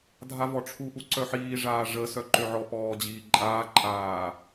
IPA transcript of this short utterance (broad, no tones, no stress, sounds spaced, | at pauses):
dʱ a v ɔ ʈ͡ʂʰ u ʔ u ǀ œ ħ iː ʐ aː ʐ ə s œ ǃ ø ʕ ɔ p ɔː d͡ʑ iː ǃʼ aː ǃʼ aː